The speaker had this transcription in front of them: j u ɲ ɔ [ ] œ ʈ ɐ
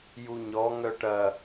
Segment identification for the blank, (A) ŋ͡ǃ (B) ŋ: B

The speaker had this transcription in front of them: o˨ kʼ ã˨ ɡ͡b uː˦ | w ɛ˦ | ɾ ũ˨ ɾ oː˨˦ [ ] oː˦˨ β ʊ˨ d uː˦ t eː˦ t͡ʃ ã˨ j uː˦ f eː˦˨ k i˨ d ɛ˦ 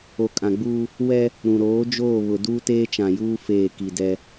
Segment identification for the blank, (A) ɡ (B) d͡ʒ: B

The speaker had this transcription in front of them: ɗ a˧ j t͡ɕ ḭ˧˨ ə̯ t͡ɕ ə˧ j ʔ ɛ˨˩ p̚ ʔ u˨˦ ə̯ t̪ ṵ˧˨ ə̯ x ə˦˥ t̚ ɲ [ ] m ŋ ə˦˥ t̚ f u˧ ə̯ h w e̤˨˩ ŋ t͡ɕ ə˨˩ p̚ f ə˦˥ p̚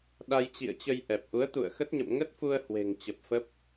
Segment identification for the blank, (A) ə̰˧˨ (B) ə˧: A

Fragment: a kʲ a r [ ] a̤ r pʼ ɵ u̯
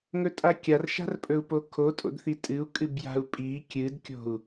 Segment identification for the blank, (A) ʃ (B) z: A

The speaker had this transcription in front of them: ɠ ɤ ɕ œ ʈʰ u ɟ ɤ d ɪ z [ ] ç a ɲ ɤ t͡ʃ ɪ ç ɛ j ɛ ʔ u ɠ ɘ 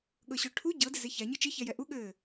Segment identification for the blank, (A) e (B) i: A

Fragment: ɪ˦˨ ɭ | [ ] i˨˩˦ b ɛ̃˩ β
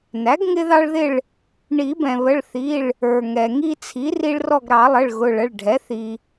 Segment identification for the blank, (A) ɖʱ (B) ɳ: B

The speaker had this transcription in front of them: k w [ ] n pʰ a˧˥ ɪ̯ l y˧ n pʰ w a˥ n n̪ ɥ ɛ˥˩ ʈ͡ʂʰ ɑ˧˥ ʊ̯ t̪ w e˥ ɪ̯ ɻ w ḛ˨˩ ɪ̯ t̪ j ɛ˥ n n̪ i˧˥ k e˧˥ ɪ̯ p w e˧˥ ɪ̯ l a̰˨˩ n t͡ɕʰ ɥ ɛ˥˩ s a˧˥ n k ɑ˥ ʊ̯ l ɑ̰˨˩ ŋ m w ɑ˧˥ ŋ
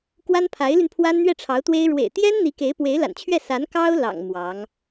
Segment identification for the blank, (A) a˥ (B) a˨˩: A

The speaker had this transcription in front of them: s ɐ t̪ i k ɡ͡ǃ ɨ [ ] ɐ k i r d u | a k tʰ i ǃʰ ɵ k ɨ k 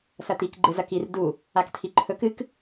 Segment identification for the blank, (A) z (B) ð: A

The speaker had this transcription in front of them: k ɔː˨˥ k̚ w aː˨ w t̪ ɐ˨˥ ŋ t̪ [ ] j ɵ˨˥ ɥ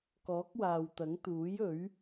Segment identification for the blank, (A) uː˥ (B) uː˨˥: B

